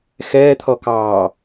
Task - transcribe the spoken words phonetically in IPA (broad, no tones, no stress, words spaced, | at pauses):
xɛːt̪ʰɔkɑː